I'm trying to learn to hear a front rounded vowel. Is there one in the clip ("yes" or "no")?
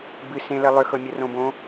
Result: yes